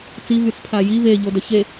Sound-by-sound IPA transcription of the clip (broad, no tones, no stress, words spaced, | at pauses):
t͡si vyt͡spʰaji ve ʎodœçe